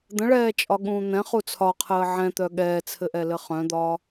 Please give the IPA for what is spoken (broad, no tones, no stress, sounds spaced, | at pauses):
d̪ ə̃ ɭ ɛː t͡ʃʼ ɒ ɠ ũː n̪ ɛ̃ χ u t͡sʰ ɒ qʰ əː ʕ ɛ̃ t̪ œ ɠ ɛː t͡sʰ ɘ ʔ ɛ l ɘ χ œ̃ d̪ ɒ